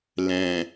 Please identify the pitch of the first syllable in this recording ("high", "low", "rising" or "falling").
low